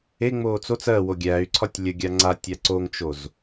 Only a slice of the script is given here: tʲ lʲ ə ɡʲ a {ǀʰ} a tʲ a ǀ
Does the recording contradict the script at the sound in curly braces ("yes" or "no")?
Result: yes